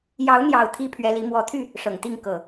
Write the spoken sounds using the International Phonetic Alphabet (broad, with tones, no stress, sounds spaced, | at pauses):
j ɑ˨˦ ʊ̯ n̪ j ɑ˨˩ ʊ̯ t̪ʰ i˦ pʰ ɥ ɛ˨˦ l i˨˦ m w ɔ˨˩ t̪ʰ y˥˨ | ʂ ɤ˨˩ ŋ t̪ i˥˨ ŋ k ɤ˨˩